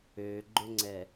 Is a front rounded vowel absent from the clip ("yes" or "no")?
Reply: no